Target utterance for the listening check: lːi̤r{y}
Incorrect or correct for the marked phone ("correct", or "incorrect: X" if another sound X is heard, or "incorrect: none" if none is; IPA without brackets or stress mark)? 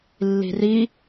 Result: incorrect: i